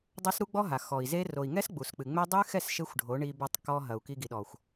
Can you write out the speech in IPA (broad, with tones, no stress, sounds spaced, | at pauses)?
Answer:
dˤ ɐ˦ s ɾ u˦ ɡ͡b ɔ˦ ɦ a˨ x ɔ˨ i̯ z e˦ r o˨ i̯ ŋ ɛ˦ s ɡ͡b u˨ s k͡p ɨ˨ ŋ͡m ɛ˦ dˤ ɨ˦ x ɛ˦˨ s ʃ e˦ xʷ ɖʱ o˨˦ ɳ i˧ b e˧ tˤ k ɔ˧ ɦ ɐ˨ u̯ k i˧ ɡ i˨ ɗ ɔ˨ xʷ